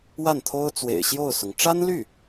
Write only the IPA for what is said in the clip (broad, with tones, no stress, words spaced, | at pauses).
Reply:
wa˥˩nt̪ʰo˥ʊ̯ t͡swḛ˨˩ɪ̯ɕjo˥˩ʊ̯sʊ˩ŋ ʈ͡ʂa˥nly˥˩